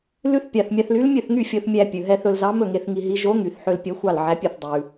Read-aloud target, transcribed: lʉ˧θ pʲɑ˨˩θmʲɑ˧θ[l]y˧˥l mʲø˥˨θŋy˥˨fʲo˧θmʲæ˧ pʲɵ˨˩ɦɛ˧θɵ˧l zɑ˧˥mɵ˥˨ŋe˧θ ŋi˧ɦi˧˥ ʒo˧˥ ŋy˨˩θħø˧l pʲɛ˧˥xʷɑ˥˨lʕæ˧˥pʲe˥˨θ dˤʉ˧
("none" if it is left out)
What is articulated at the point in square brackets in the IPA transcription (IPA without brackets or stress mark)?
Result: l